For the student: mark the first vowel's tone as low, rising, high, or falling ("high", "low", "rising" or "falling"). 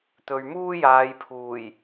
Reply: low